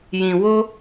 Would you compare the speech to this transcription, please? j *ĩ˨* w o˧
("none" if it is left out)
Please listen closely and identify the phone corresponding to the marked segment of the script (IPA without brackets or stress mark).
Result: ĩ˨